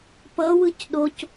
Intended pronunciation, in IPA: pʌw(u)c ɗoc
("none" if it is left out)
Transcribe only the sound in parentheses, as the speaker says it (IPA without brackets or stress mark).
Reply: ɯ